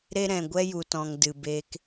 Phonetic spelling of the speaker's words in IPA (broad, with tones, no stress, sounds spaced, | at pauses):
ɾ e˧ ɾ ɛ̃˨ ɡʷ ɛ˧ j u˨ t ɔ̃˨ ŋ d ɨ˨ b e˧ k